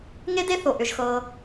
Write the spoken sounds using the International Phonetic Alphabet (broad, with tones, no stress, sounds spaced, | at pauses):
ŋ e˦ d e˦ θ o˨ ʔ ʏ˧ ʒ x ɤː˧